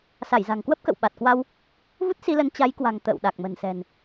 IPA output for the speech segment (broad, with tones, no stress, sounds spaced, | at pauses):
s a˧˩ j z a̤˨˩ ŋ k w ə˦˥ p̚ k ə̰˧˨ w ɓ a˨˩ t̚ k w a˧ w | v u˦˥ t̚ s i˧ l ə˨˦ n t͡ɕ a˨˦ j k w a̤˨˩ ŋ t̪ ə̰ː˧˨ w ɗ a˨˩ k̚ m ə̤˨˩ n s ɛ̤˨˩ n